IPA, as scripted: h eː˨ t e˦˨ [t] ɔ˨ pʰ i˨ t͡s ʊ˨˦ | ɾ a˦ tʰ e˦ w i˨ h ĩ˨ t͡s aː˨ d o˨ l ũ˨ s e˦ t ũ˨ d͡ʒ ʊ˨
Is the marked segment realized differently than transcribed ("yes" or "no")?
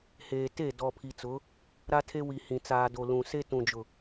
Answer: yes